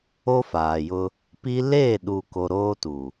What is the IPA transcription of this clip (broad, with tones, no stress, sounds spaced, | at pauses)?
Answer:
o˦ f aː˨ j ʊ˦ | p i˦ l eː˦˨ ɗ u˨ k o˨ ɾ oː˦ t u˨